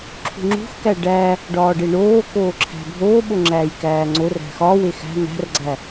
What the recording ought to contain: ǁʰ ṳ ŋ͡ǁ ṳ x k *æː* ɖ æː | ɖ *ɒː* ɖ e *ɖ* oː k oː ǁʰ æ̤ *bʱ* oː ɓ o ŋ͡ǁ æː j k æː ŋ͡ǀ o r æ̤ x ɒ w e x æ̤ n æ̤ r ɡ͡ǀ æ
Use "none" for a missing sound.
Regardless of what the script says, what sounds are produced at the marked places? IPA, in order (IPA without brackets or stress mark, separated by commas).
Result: æ, ɒː, ɳ, bʱ